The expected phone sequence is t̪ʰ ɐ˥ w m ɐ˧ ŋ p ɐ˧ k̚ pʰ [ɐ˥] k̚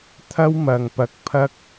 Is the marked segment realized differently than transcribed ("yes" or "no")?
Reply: no